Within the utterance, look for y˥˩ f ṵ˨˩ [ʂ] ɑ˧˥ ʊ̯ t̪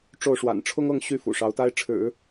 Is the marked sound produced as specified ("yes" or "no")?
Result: yes